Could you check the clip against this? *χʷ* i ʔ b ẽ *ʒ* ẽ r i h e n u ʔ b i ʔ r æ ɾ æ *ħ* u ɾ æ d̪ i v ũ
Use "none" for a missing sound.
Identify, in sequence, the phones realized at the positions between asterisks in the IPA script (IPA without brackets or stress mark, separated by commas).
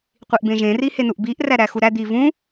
qʷ, ʒ, x